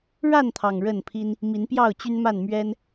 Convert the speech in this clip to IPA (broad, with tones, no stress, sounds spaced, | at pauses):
ɻ a˥˨ n t̪ʰ ɑ˨˩ ŋ ɻ ə˥˨ n pʰ i˦ n | m i˨˦ n p j ɑ˥˨ ʊ̯ t͡ɕ y˦ n m a˥˨ n m ɥ ɛ˦ n